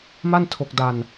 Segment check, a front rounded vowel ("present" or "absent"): absent